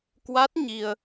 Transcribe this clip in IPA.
kwa˦˥t̚ ɲi˧ə̯

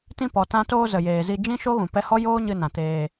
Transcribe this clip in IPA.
tĩ˧pɔ˨ tã˧toː˧ zə˨jeː˨zi˧ d͡ʒĩ˦ʃo˦ɣũ˨ pɛ˧hɔ˦ joː˦ɲɨ˧nã˨ teː˧

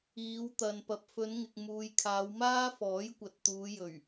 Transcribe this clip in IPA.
iː˨˧wt̪ɐ˨n pɐ˨p̚fɵ˨˧nŋɪ˨k̚ muː˨jkʰaː˨˧w maː˥fɔː˨˥j kʷɐ˨t̚t̪uː˨˧jɵ˨˩ɥ

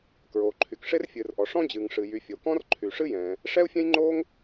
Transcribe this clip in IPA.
kɹoː˩ǃʰy˩k ʂe˥rfʲɨː˩rʔɔ˩ ʂɔ̃˥d͡ʑɨː˩ŋ ʂɨ˩ jy˩ fʲo˩ kɔ̃˥r ǃʰy˩ʂɨ˥jɛ̃ː˩ | ʂɛ˥u̯fʲɛ̃˥jŋ͡ǃoː˥ŋ

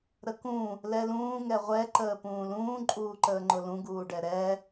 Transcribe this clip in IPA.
ɾəkũ | lɛlũː ŋɛʁʷɛ ǃəːpũːlũː ǃʼuːǃəːŋ͡ǃʊlũ ɡuːɖɛɾɛ

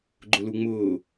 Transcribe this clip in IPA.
ɡ͡ǃʊluŋ͡mʊː

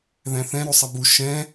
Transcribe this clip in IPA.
ðæ̃θɛ̃ ɾusˤæbu ʃɛ̃

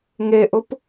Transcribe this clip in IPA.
ŋeʔʊp

